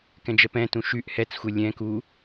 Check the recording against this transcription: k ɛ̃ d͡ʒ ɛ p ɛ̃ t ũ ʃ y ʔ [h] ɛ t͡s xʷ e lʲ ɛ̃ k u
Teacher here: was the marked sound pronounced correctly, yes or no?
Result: yes